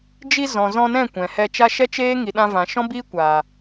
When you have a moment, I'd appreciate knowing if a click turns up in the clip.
no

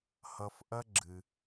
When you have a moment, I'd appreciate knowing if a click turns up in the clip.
yes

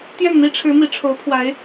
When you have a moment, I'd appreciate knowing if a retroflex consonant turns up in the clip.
yes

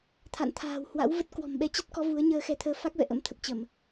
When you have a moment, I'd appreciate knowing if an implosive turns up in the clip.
yes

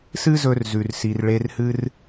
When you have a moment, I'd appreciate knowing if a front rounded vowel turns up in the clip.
no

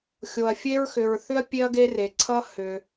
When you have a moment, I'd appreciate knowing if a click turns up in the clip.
yes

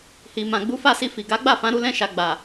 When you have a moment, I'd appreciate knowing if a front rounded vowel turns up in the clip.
no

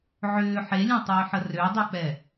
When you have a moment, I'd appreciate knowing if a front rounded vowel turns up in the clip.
yes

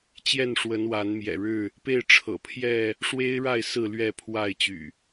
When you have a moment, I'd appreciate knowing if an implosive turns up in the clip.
no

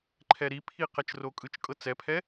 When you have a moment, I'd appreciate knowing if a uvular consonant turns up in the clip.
yes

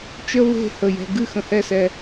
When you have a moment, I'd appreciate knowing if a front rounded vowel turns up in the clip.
no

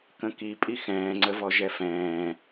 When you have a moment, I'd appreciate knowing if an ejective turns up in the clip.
yes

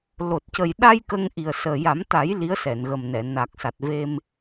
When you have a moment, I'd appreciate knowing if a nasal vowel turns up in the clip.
no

